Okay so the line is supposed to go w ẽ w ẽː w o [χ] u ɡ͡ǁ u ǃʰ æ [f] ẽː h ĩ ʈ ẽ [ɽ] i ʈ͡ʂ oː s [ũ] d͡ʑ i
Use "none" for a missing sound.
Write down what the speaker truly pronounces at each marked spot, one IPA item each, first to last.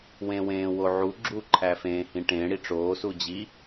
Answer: ʕ, f, ɽ, u

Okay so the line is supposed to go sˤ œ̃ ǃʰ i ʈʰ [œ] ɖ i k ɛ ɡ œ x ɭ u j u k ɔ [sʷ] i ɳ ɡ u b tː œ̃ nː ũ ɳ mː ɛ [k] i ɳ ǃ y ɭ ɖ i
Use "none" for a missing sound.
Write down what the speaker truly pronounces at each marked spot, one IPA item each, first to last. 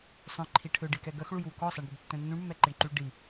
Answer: ø, sˤ, ǃ

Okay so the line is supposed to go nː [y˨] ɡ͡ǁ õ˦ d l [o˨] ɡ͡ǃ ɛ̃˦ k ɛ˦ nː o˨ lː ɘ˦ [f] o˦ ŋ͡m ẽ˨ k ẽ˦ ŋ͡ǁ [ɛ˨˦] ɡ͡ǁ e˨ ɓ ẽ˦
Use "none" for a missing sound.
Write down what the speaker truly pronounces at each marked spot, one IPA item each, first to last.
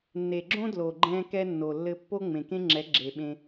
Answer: e˨, o˨, pː, ɛ˨˦

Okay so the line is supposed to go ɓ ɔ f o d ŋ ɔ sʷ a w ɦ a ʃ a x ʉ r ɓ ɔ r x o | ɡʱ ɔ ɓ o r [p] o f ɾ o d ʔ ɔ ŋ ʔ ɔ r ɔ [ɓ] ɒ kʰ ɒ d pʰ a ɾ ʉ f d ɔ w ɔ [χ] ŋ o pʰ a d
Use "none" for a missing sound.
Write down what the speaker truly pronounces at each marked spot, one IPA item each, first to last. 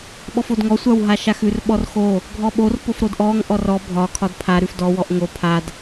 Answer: p, bʱ, ʔ

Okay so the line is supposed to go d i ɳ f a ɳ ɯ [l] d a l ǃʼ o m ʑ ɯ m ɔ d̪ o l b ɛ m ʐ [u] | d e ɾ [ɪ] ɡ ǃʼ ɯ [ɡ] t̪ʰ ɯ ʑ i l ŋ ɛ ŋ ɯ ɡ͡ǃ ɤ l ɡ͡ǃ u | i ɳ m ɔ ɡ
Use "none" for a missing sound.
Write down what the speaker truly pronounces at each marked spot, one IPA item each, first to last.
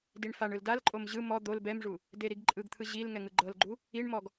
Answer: l, u, i, ɡ

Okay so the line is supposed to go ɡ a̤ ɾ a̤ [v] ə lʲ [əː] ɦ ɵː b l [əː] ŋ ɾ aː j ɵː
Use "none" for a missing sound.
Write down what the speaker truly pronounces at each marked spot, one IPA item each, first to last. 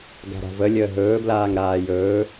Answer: v, əː, aː

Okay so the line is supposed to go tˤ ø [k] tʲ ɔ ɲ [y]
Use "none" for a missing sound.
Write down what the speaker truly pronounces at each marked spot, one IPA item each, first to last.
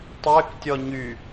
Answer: k, y

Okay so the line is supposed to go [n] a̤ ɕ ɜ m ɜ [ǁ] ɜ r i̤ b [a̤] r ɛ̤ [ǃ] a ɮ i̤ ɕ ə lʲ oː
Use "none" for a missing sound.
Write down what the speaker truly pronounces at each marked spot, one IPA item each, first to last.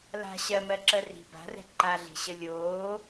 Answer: l, ǁ, a̤, ǃ

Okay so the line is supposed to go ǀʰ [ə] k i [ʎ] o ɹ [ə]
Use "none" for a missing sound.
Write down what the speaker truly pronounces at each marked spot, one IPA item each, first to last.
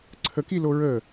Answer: ə, l, ə

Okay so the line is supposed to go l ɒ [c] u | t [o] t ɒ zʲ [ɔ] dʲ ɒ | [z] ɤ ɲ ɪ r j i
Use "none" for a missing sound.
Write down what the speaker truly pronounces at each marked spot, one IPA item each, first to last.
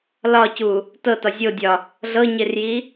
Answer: c, ɤ, o, ɮ

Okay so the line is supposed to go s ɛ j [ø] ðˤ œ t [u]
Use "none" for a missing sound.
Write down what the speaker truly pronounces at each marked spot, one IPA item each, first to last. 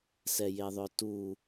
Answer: e, u

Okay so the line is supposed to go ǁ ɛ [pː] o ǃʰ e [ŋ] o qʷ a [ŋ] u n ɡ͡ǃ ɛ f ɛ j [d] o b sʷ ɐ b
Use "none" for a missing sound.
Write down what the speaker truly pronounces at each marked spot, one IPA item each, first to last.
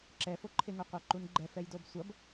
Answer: f, ŋ, ǃ, d

